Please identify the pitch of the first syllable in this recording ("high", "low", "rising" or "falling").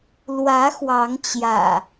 rising